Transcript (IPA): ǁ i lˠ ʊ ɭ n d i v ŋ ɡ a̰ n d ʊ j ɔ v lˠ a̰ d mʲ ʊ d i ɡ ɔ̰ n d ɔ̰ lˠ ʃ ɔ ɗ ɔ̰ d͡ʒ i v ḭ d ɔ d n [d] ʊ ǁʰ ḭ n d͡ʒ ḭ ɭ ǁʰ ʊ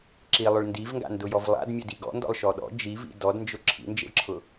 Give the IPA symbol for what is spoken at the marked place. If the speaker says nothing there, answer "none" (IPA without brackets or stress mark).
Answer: d͡ʒ